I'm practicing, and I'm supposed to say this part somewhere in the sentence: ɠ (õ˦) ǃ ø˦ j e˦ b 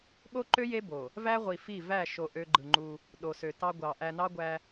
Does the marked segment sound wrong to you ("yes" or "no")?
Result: yes